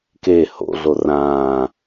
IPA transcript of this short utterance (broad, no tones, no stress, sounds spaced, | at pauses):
k e h o̰ ɮ o r ãː